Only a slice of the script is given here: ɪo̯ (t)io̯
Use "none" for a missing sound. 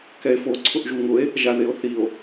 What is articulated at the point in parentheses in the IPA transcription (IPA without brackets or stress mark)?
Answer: θ